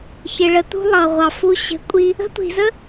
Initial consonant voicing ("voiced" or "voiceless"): voiceless